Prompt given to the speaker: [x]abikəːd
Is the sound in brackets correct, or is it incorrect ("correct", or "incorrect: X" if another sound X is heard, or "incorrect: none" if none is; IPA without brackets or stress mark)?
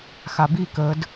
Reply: correct